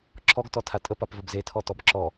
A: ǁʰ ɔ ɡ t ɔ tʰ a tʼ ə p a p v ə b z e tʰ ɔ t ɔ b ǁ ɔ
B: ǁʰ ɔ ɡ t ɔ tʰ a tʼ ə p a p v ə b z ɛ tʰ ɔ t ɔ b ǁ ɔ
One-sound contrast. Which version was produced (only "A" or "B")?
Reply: A